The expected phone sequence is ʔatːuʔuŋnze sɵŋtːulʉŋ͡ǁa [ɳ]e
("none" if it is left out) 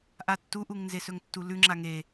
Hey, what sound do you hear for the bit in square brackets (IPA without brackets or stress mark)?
ŋ